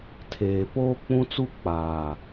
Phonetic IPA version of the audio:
tʰ eː˨ p oː˦ k͡p ũ˦ t͡s u˦ k͡p aː˨

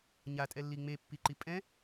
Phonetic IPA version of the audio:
ɲ a tʼ ɛ lː i ŋ͡m e pː i ǃ i pʼ ɛ̃

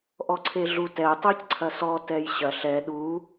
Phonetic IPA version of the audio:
ʔ ɔ ǀʰ e ɮ u t ɛ tˤ e c ǀʰ ɐ s ɔ t ɛ j ɕ ɐ ɬ ɛ ɗ u

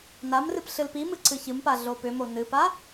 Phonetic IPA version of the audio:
n a m r ɨ p ɬ ɨ l p i m ɨ ǀ ɨ ç ɨ m p a ɮ o p ʏ m o n ɨ p a

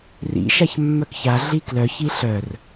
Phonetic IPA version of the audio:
r ḭ ʃ a ç mː œ k ç a ɮ i k l œ ç i ɬ œ r

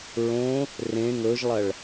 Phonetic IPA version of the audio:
ɹ õ | r ẽ ŋ ɵ ʒ lˠ ɐ ɭ

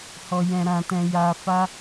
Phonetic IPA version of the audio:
h ɔ˨ j ɛ̃˨ ɾ ã˨ t ɛ̃˨ j a˨ f a˧

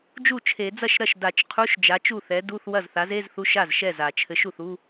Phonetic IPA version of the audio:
d͡ʒ u˥˩ t͡ʃʰ e˨˩˦ d͡z ɐ˥˩ ʃ ɾ ɐ˥˩ ʃ d a˨˩˦ t͡ʃ qʰ u˧˥˧ ʃ d͡ʒ a˨˥ t͡ʃ u˥˩ θ ɛ˨˥ d u˧˥˧ θ w ɐ˥˩ z θ a˨˥ z e˧˥˧ z θ u˧˥˧ ʃ a˥˩ z ʃ ɛ˥˩ z a˨˩˦ t͡ʃʰ ɘ˨˥ ʃ u˥˩ θ u˧˥˧

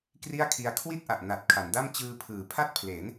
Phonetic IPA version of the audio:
k r i˥˩ a̯ kʰ i˧ a̯ kʰ w i˥˩ t̚ ʔ a˨˩ ʔ n a˨˩ t̚ kʰ a˩˦ n d a˥˩ m t͡ɕ ɯː˧ pʰ ɯː˩˦ pʰ a˥˩ t̚ pʰ l e˩˦ n

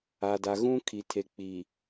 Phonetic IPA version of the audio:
a˨ d a˨ ɣ ũ˦ kʰ i˨ tʰ e˨ k͡p i˨

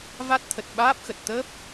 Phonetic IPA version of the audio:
v a˦˥ t̚ t̪ʰ ə˨˩ t̚ ɓ aː˦˥ p̚ x ə˨˩ t̚ t̪ əː˦˥ p̚

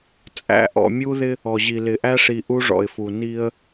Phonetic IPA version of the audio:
t͡sʼ æ̰˨ ʔ ɔ̰˨ mʲ u˦ ð ɪ˦ | ɔ˨ ʑ i˨ l ɪ˨ ʔ æ˦ ʂ i˨ ʔ u˦ ʐ ɔ̰˨ ɪ̯ f u˨ n i˦ ə̯

